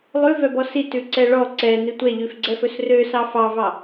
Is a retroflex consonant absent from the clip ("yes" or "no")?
no